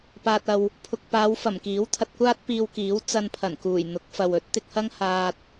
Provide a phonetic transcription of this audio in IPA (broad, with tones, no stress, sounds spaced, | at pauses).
p aː˨ t̚ ɐ˨ w | pʰ ʊ˨ k̚ p aː˨˧ w f ɐ˨˩ m k iː˨˥ w t̪ʰ ɐ˧ t̚ kʷ aː˥ t̚ p iː˧ w k iː˨˥ w t͡s ɐ˧ n pʰ ɐ˨˩ n k uː˨˩ j n̪ ʊ˨˥ k̚ f ɐ˨ w ɵ˨˥ t̚ t̪ ɪ˧ k̚ h ɐ˥ ŋ h aː˧ t̚